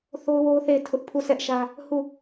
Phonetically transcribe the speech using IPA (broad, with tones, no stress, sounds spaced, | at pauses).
θ o˦ ʊ̯ w o˦ ʊ̯ θ e˦˨ ɪ̯ tʰ ʊ˦ ʔ pʰ u˦˨ sʰ ɛ˦ ʔ ʃ ä˦ | h u˦˨